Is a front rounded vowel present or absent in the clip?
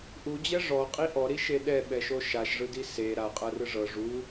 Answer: absent